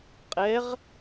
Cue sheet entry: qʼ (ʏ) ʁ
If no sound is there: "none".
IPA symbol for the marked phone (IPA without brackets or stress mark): ɛ